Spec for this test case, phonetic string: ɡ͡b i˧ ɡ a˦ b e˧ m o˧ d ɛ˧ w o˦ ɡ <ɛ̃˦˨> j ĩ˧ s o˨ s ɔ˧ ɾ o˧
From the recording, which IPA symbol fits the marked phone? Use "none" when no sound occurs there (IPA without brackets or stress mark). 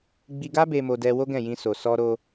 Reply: ɛ̃˦˨